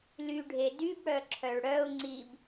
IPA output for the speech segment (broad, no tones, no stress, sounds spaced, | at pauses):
l y ɖʱ e d y b ɽ œ ǁʰ œ ɭ ɽ œ ʊ̯ ŋ͡ǀ i b